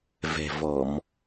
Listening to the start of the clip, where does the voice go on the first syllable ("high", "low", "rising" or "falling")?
low